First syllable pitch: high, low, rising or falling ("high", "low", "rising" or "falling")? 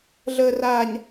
low